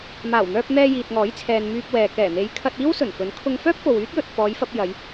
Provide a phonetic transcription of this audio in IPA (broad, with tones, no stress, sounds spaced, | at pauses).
m aː˨˩ w n̪ œː˧ p̚ n̪ ɛː˧ j iː˨ t̚ ŋ ɔː˨˥ j t͡sʰ ɛː˨ n m yː˧ p̚ w ɛː˨ k ɛː˨˩ n̪ e˨˧ j kʰ ɐ˧ t̚ iː˥ w s ɵ˨˩ n f ɵ˨˥ n kʰ ʊ˧ ŋ f œː˥ p̚ f o˨ w yː˥ t̚ j ɵ˨ t̚ f ɔː˨˧ j f ɐ˧ p̚ j ɐ˨˧ j